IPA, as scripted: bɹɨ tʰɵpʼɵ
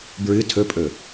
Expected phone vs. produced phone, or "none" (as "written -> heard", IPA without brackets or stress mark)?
none